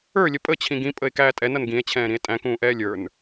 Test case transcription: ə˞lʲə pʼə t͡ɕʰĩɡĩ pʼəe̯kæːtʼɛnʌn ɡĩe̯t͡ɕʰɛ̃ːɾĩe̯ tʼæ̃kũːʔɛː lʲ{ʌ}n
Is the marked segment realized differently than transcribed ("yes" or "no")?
yes